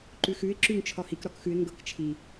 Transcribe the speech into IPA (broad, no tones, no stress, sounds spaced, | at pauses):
ǃ ʉ x ʉ ɪ̯ ǁ ʉ ŋ t͡ʃʰ ɒ h i k ɾ ɒ k x ʉ ɪ̯ ŋ ɡ ɤ k t͡ʃʰ i